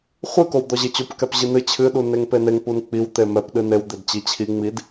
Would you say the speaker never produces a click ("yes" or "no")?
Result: yes